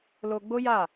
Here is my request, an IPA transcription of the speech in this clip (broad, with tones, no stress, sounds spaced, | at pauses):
l o˧ ɡ͡b o˦ j a˦˨